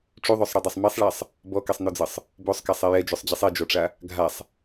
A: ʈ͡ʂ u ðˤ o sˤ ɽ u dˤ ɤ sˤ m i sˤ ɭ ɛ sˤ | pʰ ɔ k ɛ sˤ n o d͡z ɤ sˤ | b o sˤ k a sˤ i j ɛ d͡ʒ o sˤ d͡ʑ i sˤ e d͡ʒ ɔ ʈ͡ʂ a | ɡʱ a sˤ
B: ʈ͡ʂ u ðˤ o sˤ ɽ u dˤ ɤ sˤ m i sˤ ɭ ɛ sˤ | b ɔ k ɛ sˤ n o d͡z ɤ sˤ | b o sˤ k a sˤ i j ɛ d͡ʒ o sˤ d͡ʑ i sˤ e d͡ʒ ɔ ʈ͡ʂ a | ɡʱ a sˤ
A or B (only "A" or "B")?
B